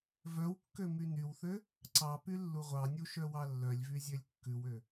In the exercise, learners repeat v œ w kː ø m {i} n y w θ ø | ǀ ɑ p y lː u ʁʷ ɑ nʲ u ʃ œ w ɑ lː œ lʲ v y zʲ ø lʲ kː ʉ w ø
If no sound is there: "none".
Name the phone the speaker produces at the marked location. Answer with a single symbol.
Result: y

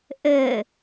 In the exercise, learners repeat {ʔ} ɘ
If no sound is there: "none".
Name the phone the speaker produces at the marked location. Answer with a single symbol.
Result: ʔ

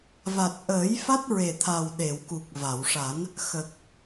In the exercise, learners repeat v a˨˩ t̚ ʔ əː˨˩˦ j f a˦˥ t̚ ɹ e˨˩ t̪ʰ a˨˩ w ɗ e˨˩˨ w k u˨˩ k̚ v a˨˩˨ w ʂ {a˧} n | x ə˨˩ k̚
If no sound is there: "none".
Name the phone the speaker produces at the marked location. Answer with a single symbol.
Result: a˨˩˦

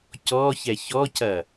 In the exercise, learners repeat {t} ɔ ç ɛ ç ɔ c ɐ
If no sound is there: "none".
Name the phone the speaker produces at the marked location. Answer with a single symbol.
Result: c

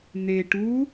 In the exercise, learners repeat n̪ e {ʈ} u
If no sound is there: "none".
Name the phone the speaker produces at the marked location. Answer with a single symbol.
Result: ʈ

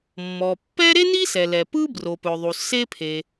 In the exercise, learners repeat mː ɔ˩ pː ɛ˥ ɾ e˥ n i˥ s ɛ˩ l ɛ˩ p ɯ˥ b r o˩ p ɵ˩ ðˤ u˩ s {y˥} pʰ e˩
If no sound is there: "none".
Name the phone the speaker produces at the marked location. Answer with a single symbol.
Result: e˥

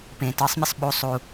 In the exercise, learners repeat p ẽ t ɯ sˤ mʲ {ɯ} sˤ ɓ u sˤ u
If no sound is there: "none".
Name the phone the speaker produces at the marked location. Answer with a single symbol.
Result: ə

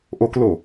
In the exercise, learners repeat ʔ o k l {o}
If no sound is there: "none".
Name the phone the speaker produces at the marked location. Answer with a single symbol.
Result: o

